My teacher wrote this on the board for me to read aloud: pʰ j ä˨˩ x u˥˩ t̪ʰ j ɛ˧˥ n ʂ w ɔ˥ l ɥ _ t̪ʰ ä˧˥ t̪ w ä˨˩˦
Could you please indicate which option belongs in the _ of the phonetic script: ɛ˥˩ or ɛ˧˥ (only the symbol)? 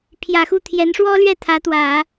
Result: ɛ˥˩